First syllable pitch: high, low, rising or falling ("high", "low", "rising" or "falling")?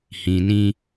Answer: low